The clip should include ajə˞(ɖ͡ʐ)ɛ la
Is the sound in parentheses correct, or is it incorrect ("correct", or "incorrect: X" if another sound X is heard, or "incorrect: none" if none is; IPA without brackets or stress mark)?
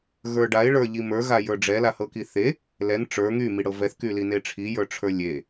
correct